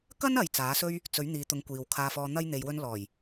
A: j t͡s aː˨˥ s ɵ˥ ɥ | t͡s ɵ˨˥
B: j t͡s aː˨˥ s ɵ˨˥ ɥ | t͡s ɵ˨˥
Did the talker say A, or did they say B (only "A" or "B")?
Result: A